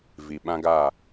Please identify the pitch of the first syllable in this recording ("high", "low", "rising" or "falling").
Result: low